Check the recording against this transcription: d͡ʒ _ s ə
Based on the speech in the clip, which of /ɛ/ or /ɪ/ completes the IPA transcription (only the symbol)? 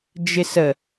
ɪ